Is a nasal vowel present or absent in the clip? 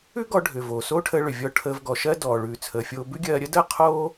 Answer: absent